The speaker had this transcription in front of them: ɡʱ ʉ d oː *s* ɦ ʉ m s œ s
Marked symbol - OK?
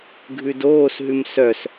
yes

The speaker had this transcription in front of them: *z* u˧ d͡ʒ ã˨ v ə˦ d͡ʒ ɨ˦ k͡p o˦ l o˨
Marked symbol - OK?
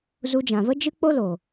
yes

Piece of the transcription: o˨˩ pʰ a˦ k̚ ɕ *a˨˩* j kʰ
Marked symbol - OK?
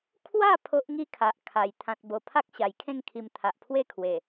yes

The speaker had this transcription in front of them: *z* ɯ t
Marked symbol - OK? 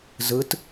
yes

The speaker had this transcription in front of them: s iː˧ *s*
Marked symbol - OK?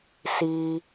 no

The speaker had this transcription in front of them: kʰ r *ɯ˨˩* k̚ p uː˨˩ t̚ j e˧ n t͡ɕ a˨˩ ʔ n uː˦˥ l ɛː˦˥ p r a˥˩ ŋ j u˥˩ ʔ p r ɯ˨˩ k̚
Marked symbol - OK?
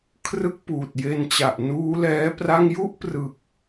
no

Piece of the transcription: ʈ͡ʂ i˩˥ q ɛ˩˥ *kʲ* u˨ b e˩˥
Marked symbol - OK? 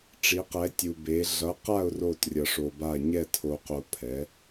no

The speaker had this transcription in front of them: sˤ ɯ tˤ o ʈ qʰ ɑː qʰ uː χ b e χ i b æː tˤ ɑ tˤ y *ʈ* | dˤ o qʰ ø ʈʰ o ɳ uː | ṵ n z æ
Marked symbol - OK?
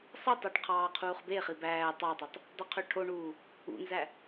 no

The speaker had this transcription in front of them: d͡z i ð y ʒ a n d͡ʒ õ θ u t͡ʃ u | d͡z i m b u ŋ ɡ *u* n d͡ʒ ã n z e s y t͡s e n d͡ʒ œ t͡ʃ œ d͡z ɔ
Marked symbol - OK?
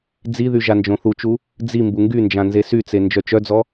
no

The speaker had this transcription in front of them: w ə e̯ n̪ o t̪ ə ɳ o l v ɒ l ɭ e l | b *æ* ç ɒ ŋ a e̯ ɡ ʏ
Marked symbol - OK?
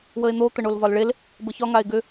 no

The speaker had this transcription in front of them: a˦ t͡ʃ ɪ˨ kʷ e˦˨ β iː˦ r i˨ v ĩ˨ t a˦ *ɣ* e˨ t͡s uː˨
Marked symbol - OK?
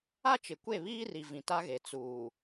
yes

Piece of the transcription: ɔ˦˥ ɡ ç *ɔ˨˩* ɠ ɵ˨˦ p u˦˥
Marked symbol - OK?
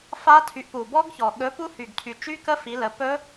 yes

